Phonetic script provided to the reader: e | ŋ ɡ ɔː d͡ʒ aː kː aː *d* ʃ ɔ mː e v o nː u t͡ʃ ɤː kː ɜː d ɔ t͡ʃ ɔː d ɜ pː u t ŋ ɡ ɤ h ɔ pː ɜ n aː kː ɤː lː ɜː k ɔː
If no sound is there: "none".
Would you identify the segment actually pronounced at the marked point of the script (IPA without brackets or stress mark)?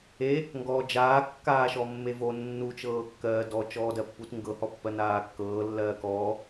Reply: none